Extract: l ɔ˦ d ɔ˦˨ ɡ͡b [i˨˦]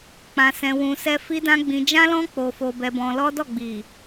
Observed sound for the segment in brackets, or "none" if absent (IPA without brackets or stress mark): i˨